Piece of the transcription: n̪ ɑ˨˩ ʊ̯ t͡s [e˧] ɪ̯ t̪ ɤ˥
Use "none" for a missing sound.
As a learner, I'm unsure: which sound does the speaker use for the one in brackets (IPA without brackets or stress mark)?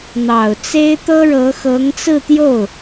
e˥